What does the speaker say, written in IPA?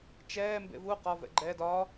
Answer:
t͡ʃɛː mbḛvu qɒ vɛ̰ɡ͡ǃɛːd ɒ

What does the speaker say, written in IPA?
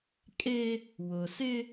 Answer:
kʼe˦ | wʊ˨sɪ˦

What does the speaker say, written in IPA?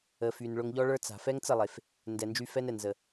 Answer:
ə˨fy˨n ɭʊ˧ŋʎɔ˦ɭə˞˦t͡sa̤˨ fɛ˦ŋt͡sə˦˨lˠe˨f | ndɛ˨nd͡ʒy˧ fɛ˦nɛ˨nzə˨

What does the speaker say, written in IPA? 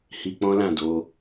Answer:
hi˧k͡pɔ̃˦lã˦˨do˧

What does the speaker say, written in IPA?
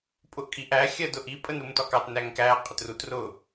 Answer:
pʼʊʔkʼiʔæ xʲɜdʊʔi pʼənɾumtɒkɑt næŋkæ qʼətrut rʊ

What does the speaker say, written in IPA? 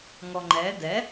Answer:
ŋɔŋ͡ǃɛ dɛ

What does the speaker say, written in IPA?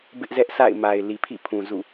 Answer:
bɪ˦ʔzɛ˦ʔsa̰˦˨ɪ̯ma˨ɪ̯ li˨pʰḭ˦˨pʰũ˨ zṵ˦˨

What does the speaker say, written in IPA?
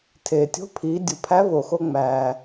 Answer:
tʰeː˩tʲo̤˧˥pʰiː˩˧ dʲu˩pʰæ˧˥ vo˩xo˧ŋ͡mæː˩

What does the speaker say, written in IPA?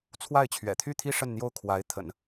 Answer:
t͡sʰwa˥˩ɪ̯ t͡ɕʰɥɛ̰˨˩t̪ʰy˥˩t̪ʰi˥ ʂə˥˧nn̪jo˥˩ʊ̯ kʰwa˧˥ɪ̯t̪ʰə̰˨˩˦n

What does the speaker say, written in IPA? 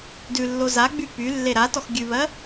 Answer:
dʉlːo zaɡ͡by pylːe ɾatɔx ɡʲʉβɜ

